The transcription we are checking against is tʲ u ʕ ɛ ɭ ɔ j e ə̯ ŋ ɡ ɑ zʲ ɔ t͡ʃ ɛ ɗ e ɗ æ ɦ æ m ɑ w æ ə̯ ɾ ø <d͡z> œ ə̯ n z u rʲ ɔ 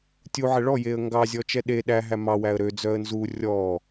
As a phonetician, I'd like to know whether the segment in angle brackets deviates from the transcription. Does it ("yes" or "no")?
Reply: no